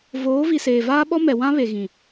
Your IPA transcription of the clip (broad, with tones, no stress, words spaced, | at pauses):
voː˨˦vi˨ seː˨vaː˦ɓɔ˦ mɛ˨wã˦βe˨ ɣĩ˨